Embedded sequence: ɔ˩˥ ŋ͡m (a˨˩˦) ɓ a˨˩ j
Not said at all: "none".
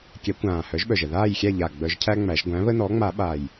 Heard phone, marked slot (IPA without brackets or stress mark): a˨˩˦